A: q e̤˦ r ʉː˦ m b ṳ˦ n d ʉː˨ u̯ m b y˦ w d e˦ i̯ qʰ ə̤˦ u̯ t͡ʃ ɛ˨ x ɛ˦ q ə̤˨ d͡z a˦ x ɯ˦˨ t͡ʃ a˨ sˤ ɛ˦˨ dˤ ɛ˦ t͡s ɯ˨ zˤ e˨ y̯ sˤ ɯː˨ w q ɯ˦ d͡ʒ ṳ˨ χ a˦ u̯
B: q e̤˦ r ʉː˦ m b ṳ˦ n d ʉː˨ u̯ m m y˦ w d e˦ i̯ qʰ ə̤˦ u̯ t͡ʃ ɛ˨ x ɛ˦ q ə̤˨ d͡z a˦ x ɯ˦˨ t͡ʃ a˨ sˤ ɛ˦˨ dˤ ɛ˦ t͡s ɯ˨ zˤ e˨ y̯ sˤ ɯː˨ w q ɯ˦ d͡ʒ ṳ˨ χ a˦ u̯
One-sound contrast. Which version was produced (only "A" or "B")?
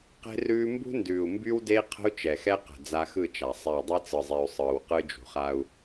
A